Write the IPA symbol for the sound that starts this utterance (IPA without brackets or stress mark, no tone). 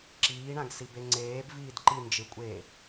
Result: ǁ